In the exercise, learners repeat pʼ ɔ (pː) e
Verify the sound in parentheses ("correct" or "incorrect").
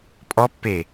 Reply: correct